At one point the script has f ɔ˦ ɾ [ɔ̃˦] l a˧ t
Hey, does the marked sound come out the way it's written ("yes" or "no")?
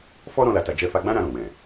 yes